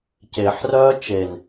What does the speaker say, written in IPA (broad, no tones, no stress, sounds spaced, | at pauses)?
c e ħ r œː t͡ʃ e n